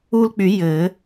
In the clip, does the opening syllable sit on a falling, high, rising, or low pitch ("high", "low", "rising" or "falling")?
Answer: high